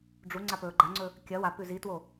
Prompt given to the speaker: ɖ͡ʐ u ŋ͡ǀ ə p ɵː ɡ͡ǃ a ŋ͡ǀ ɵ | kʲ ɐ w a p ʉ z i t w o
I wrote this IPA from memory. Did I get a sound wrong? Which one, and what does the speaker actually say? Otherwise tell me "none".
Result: ə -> a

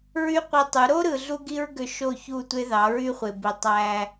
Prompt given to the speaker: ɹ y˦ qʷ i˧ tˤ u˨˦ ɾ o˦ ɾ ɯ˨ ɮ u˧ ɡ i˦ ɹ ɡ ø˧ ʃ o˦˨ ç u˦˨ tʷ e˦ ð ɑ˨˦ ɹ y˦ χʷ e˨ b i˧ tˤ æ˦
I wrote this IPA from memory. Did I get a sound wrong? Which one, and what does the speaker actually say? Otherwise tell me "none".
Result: none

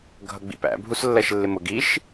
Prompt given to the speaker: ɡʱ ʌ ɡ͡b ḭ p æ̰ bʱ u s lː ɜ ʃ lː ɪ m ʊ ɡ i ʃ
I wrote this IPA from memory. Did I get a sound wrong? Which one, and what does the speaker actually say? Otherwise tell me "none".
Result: none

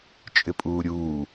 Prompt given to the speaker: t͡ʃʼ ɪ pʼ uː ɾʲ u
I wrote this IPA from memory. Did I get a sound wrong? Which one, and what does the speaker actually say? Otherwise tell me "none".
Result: u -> uː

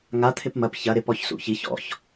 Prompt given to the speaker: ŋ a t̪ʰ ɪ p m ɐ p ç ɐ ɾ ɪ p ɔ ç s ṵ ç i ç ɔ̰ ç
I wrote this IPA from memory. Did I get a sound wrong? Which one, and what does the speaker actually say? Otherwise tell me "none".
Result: none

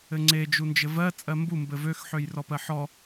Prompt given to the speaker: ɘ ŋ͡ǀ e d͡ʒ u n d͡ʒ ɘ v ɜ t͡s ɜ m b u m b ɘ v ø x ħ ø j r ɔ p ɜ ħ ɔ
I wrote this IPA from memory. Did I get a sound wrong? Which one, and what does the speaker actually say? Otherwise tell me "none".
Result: t͡s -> t͡sʼ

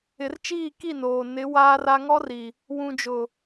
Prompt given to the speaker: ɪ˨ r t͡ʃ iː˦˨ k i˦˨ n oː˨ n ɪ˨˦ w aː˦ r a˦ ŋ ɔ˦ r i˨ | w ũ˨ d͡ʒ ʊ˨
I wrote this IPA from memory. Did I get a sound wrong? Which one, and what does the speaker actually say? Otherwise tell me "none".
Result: none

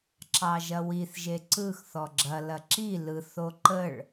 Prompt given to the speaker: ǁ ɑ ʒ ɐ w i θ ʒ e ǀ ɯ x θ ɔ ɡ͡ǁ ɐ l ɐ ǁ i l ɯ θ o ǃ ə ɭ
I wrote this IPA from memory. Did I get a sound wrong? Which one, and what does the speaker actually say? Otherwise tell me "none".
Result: none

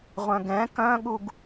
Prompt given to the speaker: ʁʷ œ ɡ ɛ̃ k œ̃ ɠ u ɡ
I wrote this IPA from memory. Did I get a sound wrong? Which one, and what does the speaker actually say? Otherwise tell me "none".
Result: œ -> œ̃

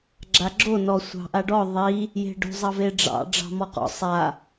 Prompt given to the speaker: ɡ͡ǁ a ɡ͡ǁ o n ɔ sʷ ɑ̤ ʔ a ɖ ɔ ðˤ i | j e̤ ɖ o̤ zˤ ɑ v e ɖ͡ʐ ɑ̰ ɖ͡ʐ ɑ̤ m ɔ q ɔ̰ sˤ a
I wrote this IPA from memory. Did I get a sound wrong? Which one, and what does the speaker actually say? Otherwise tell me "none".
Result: none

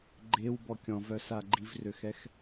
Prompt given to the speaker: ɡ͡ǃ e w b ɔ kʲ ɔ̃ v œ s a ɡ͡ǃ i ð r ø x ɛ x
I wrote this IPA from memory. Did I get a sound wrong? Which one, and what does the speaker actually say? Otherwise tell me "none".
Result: ð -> v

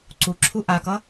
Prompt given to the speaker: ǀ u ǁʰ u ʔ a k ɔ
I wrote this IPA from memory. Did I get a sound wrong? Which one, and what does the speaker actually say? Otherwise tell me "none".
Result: ɔ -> ʌ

